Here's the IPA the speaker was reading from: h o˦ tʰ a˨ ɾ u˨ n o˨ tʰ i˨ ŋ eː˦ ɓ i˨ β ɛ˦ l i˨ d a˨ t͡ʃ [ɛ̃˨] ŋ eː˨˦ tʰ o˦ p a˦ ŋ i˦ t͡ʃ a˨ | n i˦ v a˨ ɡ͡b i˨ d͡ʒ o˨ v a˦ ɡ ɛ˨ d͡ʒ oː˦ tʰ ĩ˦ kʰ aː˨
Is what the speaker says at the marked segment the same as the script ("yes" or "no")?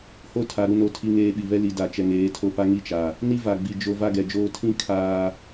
no